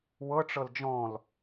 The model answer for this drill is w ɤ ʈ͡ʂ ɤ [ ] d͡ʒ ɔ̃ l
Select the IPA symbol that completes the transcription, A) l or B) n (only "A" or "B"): A